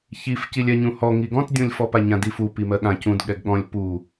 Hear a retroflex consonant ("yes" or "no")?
no